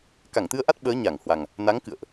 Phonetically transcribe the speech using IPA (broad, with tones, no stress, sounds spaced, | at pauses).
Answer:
k a˧˩ ŋ t̪ ɨ˧ ə̯ ʔ a˦˥ t̚ ɓ əː˨˦ ɲ a˧˩ ŋ h w a˨˩ ŋ | n a˨˦ ŋ k ɨ̰˧˨ ə̯ ʔ